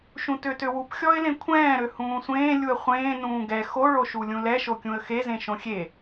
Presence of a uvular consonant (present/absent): present